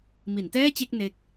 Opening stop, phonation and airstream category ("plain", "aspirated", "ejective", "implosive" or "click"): plain